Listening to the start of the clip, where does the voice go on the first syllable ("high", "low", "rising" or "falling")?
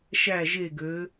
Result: falling